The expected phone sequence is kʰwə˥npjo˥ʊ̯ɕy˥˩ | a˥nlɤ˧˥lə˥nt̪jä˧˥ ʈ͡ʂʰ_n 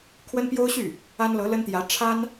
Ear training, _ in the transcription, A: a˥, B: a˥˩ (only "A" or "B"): A